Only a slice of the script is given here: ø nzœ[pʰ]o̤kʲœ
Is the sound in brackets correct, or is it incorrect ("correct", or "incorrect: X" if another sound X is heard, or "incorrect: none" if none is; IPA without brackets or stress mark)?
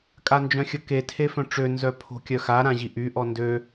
correct